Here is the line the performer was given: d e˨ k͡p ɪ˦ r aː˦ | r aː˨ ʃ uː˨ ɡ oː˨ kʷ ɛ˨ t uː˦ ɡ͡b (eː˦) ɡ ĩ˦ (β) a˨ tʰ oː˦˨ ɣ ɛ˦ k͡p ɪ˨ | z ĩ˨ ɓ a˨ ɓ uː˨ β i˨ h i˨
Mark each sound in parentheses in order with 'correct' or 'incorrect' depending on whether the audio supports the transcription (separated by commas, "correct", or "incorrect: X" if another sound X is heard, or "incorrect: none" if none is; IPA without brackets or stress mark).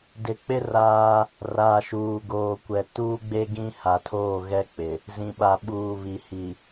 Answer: incorrect: e˦, incorrect: h